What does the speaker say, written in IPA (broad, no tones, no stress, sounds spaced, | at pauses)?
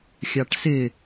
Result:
xʲ ɑ ʈ s ɪ